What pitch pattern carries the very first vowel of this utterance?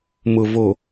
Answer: low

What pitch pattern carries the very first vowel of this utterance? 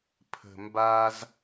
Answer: low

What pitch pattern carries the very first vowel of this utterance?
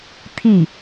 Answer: falling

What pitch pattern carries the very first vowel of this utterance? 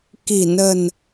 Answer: low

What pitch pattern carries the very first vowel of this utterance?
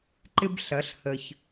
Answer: high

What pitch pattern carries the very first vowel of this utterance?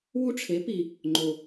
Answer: high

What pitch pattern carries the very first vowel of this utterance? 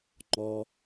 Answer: high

